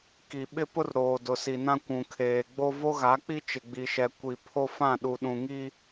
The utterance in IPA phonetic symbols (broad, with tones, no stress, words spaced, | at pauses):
ki˨ ɓɪ˦pʊ˦r ɾoː˨dʊ˨si˨nã˦ kʷũ˨kʰeː˨ɡ͡bo˦ vo˦ɣa˨˦k͡pi˦ t͡ʃɪ˨ɡ͡bi˨ʃɛ˨kʷi˨ pʰo˦fã˦˨ ɗu˨ ɗũ˨ŋi˦